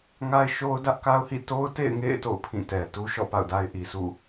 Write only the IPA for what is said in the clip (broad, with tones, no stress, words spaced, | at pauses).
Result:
ŋa˦ɪ̯ʃo˦ʊ̯dä˦ʔ ka˦ʊ̯hḭ˦˨ to˦ʊ̯tḛ˦˨ɪ̯ŋḛ˦˨ɪ̯ to̰˦˨ʊ̯pʰĩ˦˨tɛ˨ tu˦ʃɔ̰˦˨ pa̰˦˨ʊ̯da˦ɪ̯ʔi˨sṵ˦˨